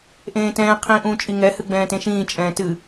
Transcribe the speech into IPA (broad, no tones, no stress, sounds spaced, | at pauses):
ʔ ẽː t ɛ̃ː qʰ ĩː ʔ ũː t͡ʃʼ i ŋ ɛ h ɨ ɡ͡b ɛ̃ː t ẽ ʃ ĩː t͡ʃʼ ɛ̃ː t ɨ